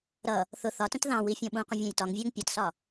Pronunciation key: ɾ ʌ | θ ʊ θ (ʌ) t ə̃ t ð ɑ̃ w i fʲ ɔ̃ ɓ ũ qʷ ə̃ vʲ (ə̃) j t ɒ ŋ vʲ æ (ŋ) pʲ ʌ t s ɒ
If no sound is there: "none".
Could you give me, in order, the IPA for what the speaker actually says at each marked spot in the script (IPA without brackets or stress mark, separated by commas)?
ɒ, æ̃, ŋ